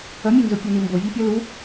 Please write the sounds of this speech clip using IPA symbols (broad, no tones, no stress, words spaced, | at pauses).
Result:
ʌmʲænzo pʲɔnimbo vʲɔpʲʌ lu